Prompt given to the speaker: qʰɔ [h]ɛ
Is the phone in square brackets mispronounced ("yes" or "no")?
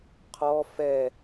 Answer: yes